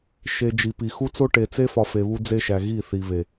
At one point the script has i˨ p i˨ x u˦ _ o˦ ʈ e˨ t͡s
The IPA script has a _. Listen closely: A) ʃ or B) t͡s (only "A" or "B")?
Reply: B